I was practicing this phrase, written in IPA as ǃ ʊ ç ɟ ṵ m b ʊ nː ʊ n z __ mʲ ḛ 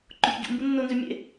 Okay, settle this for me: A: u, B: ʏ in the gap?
B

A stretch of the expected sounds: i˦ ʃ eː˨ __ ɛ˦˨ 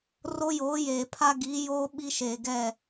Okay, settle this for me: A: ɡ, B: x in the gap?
A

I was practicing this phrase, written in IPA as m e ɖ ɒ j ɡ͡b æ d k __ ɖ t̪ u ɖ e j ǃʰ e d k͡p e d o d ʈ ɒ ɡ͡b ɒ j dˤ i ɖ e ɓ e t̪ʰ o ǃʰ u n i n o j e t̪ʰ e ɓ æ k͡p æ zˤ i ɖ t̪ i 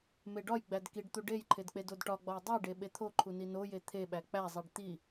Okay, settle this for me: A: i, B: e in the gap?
A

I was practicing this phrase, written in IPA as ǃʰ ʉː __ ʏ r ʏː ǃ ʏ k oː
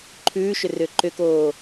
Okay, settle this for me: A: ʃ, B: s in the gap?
A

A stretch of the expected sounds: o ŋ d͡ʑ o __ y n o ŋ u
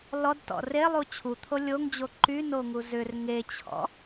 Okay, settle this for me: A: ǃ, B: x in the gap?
A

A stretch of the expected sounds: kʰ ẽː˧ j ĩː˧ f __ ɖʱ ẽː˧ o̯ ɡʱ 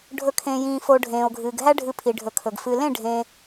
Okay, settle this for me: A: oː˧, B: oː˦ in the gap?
A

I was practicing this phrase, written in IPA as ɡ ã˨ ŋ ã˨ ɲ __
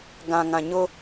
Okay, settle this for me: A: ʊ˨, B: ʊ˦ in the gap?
B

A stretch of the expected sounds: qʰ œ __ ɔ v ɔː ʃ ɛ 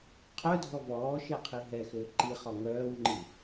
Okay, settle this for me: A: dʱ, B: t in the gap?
A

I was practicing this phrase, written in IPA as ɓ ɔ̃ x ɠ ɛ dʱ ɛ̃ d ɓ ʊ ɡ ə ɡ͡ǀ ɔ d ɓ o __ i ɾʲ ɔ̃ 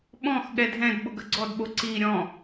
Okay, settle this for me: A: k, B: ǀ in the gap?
B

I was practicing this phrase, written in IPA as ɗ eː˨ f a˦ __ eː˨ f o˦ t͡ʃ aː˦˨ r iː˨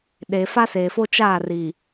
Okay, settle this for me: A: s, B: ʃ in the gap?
A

